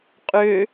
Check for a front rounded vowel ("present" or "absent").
present